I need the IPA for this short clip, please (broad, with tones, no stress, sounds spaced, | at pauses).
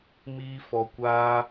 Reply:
m iː˦ f ɔ˧ kʷ aː˦